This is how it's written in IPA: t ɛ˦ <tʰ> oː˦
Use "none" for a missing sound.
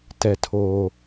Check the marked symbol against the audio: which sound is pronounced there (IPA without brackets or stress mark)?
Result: tʰ